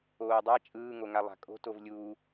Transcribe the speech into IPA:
oːdˤa t͡ʃʼɯːŋoŋa lˠa̤kʼo̤ tovlʲuː

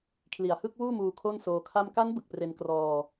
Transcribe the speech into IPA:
kʰli˨˩a̯ hɯ˥˩k̚wuː˥˩muː˧ kʰo˥˩nsoː˧kʰa˥˩m ka˦˥nbɯ˨˩k̚ pre˧nkrɔː˧

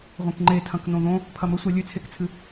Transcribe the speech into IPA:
ʁʷẽkŋ͡ǃetʰɐ̃k nõðõ | pʰɐmɵsʷe lʲʉt͡sʰekt͡sʰɨ

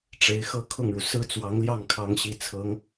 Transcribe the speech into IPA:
ʈ͡ʂe˧˥ɪ̯ xɤ˥˧kʰʊ˥˩ŋɻu˩ sɹ̩˥t͡swɑ˧˥ŋljɑ˥˩ŋ kʰɑ˧˥ŋ ɕi˧˥t͡sʰɤ˧˥ŋ

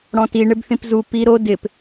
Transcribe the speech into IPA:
ɽɔ̃ti ɳɪbθĩpzu pi ɾo dɪp

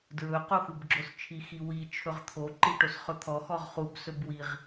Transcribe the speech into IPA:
dɹɵ qoxubɡ͡ǁost͡ʃʰi xiwi t͡ʃʰɵʁt̪ʰo ǃiʈosχɵt̪ʰɔ xɔʁχub sɵbwiʁ

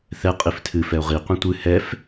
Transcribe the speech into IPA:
θɛ qʼiftʰɨ fɛo̯ʁi qʷĩtʷɨ hɛf

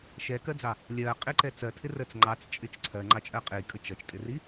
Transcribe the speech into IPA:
ʃɛkɜd͡zɑ | lʲɜqʼiǃɛ t͡sɜtʰɪrɜt͡s ŋ͡ǃɑt͡st͡ʃʼɪt͡ʃ ǀʰɜŋ͡ǃɑt͡ʃʼɜ qʼikʼə t͡ʃʌt͡ʃtʼɪri

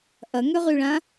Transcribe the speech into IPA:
ʔɐŋøʁyɭã

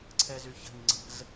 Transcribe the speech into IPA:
ǀʰɛzyçə̤ɲ ŋ͡ǀə̤z

